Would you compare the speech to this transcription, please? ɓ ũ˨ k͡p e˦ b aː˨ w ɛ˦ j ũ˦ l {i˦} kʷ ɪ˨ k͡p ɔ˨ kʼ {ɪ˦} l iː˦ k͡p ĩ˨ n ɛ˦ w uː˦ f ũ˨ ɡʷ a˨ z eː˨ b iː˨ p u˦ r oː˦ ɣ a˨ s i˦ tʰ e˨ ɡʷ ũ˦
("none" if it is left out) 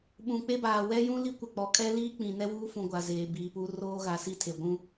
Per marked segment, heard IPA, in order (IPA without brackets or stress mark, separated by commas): i˦, ɛ˦